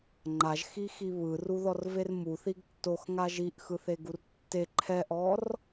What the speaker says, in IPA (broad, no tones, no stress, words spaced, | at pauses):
ŋ͡ǃaʒxixi βɯruðɔrver muθiɡ tːoxŋa ʒiʔxɯθeɡur tːe ǃʰɛʔɔr